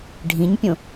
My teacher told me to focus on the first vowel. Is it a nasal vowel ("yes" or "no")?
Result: yes